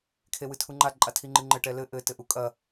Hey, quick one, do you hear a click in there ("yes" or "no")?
yes